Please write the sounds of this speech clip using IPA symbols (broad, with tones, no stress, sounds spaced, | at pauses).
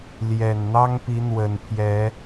l j ɛ˨˩ n n̪ ɑ˦ ŋ p i˨˦ n̪ w ə˨˩ n pʰ j ɛ˨˦